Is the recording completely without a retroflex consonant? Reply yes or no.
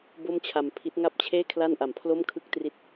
yes